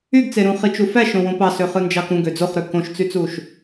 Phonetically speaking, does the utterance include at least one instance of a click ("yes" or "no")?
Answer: no